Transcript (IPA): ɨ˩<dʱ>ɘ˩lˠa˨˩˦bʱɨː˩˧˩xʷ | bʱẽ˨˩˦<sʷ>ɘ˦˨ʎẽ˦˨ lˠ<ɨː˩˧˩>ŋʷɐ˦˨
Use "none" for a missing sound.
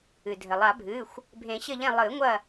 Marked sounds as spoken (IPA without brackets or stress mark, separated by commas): dʱ, ɕ, ɨː˨˩˦